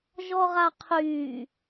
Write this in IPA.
ʒ ɔ ʁ a qʰ yː

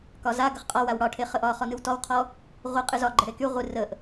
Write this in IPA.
k ɒ z a ɡ ə χ qʼ ɒ w a w ɽ ɒ ʈʰ e χ ə ʔ ɒ χ ɔ n ɨ w t ɔ w qʰ ɔ | ʁʷ ɨ qʼ ɨ z ɒ ɡ͡ǃ ə ɽ e k y ʁʷ ɨ r ə ʔ

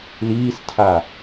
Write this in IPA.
l iː s tʰ a

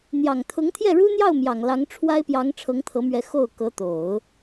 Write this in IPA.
n̪ j ɑ˨˩ ŋ t̪ʰ ʊ˧˥ ŋ t̪ʰ j ɛ˥˩ ɻ u˥ n̪ j ɑ˥˩ ʊ̯ m j ɑ˨˩ ŋ l ɑ˧˥ ŋ ʈ͡ʂʰ w a˥ ɪ̯ p j ɑ˧˥ ŋ ʈ͡ʂʰ ɤ˧˥ ŋ t̪ʰ ɤ˧˥ m ɥ ɛ˧˥ x o˥˩ ʊ̯ k ɤ˧˥ t̪ o˨˩˦ ʊ̯

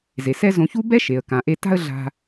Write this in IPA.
z e˩ s ɛ˥ z õ˧ ç u˥ b ɛ˥ ʃ e˩ ə̯ k ã˩ ʔ e˧ t a̤˥ ə̯ ɮ a̤˧

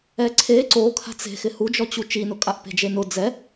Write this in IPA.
ɛ ǀʰ e ǀ o kʰ a̤ t͡s e̤ x ɪ h u d͡ʒ ɔ t͡ɕ u t͡ʃ i n ʊ kʼ a ʔ p e̤ d͡ʒ e n ʊ d͡z ɛ

